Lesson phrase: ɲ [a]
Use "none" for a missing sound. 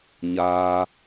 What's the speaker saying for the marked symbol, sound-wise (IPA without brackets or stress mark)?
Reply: aː